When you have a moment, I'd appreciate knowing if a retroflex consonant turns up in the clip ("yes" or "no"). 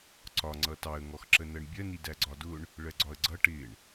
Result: yes